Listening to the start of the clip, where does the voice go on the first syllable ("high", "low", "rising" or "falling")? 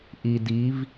low